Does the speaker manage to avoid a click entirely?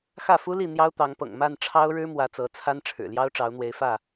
yes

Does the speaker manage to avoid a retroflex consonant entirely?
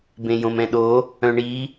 no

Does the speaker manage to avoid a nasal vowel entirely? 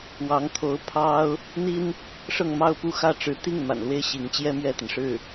yes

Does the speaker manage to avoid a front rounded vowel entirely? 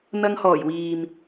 yes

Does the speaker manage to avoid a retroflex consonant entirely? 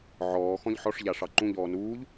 no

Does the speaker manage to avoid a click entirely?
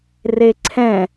no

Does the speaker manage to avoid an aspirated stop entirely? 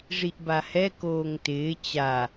yes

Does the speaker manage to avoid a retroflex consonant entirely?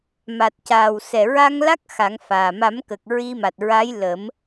yes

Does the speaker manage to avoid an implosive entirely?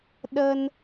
no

